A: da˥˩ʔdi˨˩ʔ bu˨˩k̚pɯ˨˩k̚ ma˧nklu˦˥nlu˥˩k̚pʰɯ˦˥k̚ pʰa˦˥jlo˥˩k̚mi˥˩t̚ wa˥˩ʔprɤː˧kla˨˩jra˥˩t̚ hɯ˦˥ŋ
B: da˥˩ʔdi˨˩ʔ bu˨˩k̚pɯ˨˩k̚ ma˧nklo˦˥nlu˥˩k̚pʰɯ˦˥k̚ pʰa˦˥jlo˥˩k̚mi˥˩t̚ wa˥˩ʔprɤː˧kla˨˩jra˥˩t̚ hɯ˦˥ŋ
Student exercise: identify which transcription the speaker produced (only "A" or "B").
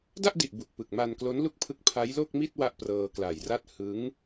B